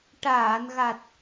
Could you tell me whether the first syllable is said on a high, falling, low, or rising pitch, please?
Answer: low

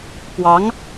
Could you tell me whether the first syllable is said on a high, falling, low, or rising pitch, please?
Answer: rising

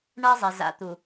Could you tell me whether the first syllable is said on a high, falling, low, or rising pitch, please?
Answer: high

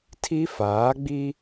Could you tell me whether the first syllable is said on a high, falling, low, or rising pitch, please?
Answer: high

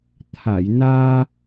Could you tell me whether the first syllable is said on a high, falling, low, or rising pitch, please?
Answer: low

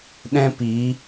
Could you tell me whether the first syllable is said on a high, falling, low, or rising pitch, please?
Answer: high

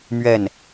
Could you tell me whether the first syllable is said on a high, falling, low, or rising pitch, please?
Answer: falling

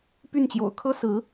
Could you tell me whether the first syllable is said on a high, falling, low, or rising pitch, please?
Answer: falling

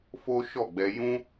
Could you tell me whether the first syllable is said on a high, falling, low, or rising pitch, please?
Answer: high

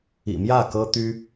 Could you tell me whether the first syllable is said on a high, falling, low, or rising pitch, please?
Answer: low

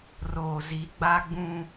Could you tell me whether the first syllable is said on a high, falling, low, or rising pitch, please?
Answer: low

